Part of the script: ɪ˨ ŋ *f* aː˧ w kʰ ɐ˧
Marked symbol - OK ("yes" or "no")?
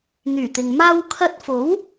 no